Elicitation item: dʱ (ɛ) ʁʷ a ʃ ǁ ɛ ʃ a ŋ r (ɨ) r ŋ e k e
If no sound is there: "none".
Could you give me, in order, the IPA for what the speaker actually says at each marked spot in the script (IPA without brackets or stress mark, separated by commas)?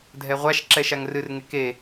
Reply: ɛ, ɨ